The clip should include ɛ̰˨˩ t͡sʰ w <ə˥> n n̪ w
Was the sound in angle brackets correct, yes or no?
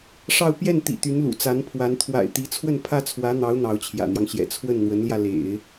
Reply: no